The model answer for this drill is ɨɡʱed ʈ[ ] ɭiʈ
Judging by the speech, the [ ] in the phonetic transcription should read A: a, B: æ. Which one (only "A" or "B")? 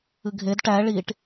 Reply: B